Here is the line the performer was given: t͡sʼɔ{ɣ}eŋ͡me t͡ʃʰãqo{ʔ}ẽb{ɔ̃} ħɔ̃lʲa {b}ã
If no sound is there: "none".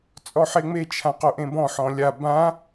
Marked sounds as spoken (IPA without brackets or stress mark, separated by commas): ħ, ʔ, ɔ̃, b